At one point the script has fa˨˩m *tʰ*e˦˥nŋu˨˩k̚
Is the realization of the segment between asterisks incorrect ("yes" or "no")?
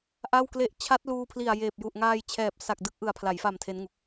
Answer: no